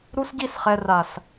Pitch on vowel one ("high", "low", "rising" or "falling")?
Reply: high